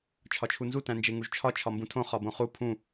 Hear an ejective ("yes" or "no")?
no